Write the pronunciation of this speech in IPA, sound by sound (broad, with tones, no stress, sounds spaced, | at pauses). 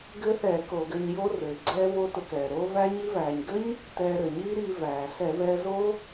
ɡ ɘ˦˥ θ ɛ˧˩˧ k o˧˩˧ ɡ ɘ˧ ɲ j o˦˥ r ɘː˩ ɡ͡ǀ ɛː˦˥ v o˦˥ t ʊ˧ k ɛː˩ ɾ o˦˥ v æ˦˥ ɲ i˦˥ v æː˩ ɲ ɡ ɘ˦˥ ɲ | t ɛː˧ ɾ ɘ˩ ɲ iː˦˥ ɾ iː˧ v æː˩ ɬ ɛ˧˩˧ v ɛː˧ z o˦˥